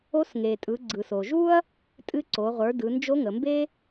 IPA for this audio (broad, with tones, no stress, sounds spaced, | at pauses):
o˧˥ s ŋ e˩ tʼ ɯ˩˧ ɡ͡ǀ ɯ˩ s o˩ ʒ u˥ ɐ̯ | tʼ ɨ˧˥ ǀ o˩˧ ʁʷ ə˞˩˧ d ɯ˩˧ n d͡ʒ o˧˥ ŋ ə˩˧ m b e˥